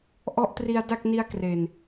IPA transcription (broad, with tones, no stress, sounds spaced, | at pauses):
ʔ ɔ˦˥ ʔ t r i˧ a̯ d a˥˩ k̚ n i˦˥ a̯ k r e˨˩ n